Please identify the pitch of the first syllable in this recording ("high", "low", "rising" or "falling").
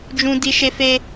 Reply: high